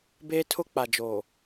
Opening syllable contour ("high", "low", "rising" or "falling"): high